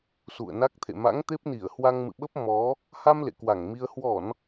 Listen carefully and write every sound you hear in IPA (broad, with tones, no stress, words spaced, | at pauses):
sṵ˧˨ə̯na˦˥k̚t̪ʰḛ˧˨ ma̰˧˥ŋt̪e˦˥p̚ni˧˩ə̯ hwa˧ŋmɨ̰˧˨ɓə˦˥p̚ mɔ˨˦ | ha˧m lḛ˧˨kwa˧˩ŋmi˧ə̯ hwɔ˧˩˨n